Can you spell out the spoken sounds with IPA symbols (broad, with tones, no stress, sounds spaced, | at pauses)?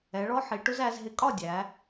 ɛ˩˧ ɭ ɔ˧ ħ i˩˧ ʈ ʊ˧ z æ˩˧ z ɦ ɪ˨˥ kʼ ɒ˥˩ dʲ æ˩˧